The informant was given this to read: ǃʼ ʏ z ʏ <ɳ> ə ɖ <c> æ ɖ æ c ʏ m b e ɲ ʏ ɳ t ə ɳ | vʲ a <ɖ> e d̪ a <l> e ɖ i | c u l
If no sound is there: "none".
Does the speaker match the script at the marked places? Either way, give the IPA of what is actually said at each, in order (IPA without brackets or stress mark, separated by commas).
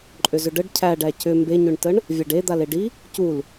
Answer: ɖ, cʰ, ɖ, l